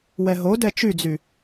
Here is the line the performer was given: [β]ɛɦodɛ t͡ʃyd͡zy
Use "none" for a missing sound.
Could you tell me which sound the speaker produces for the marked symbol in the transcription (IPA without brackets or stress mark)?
w